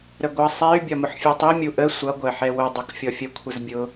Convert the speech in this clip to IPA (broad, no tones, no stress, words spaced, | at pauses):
ɾəɡʷʌ sˤɛy̯ bʲɒmʊħfʲɛtˤi mʲuʔə sʷʌ ɡʷɜħɛwʊ dˤukfʲɔfʲə kʷʰəzbʲʊ